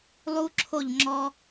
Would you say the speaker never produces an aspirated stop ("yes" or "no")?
no